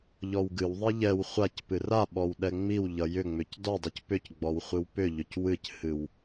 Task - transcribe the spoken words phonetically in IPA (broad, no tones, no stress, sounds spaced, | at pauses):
ʎ ɔ w ɡ ɨ w ðˤ i ʎ ɛ w χʷ a c p ɨ r a ɓ ɔ w ɗ ɛ ŋ͡m i w ʎ ʌ j ʏ ŋ͡m ʏ c d ɔ dˤ i c p ʏ c ɡ͡b ɔ w χʷ ɨ w p ʏ ʎ ʏ c w ɨ c h ɨ w